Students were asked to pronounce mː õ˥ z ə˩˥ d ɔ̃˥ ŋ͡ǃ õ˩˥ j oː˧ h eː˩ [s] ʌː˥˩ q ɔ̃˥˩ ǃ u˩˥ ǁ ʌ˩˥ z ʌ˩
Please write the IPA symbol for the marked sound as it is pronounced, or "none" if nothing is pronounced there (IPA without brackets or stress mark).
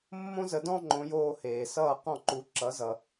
s